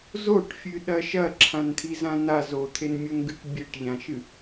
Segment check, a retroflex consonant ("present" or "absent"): present